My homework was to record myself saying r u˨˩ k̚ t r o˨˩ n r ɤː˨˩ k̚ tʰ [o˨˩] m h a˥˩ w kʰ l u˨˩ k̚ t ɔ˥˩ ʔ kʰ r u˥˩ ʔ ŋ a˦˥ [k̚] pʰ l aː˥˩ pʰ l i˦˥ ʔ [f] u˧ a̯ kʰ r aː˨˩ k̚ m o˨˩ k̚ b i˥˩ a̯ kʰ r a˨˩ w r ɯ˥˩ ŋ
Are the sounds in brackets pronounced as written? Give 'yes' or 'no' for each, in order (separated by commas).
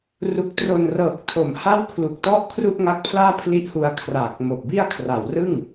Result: yes, yes, no